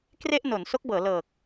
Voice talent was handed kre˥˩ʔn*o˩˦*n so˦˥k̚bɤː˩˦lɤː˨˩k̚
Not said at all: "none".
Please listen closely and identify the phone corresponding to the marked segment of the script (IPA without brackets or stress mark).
o˩˦